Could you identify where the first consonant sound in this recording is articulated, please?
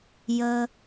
palatal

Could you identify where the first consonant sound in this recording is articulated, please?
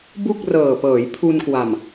labial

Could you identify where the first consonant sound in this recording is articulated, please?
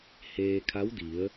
glottal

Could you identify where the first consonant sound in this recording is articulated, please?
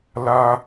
alveolar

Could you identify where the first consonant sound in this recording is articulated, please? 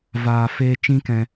labial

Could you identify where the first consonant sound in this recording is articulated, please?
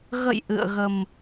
velar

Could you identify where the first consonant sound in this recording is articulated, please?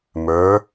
labial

